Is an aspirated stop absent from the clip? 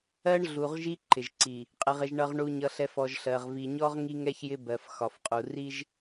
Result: yes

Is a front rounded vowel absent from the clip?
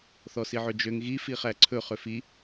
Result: no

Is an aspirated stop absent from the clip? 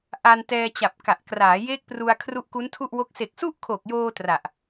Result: no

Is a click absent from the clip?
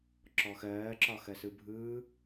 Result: no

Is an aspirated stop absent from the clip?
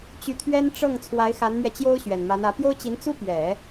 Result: no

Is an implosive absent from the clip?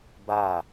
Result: yes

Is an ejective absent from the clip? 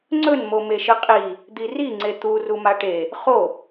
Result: no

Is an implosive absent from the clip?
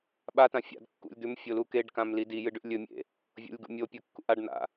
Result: no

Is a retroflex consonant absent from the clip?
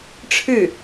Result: no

